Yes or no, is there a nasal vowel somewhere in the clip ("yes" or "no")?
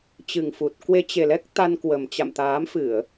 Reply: no